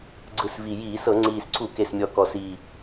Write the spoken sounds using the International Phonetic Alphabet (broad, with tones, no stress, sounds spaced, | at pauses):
ɡ͡ǀ ɯ˨˩ s v i˨˩ j iː˧˩˧ s ɤ˧˩˧ ŋ͡ǀ iː˨˩ s ǀʰ u˧˩˧ k e˨˩ s mʲ ɔ˨˩ k ɔ˨˩ s i˨˩